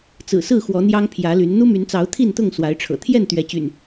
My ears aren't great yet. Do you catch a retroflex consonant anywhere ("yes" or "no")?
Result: yes